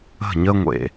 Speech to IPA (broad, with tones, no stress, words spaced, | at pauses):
ə̤˦˨ɲə˦ŋʷḛ˨